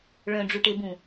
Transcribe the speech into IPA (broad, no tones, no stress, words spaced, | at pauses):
ɭœ̃ɖ͡ʐuʈebũ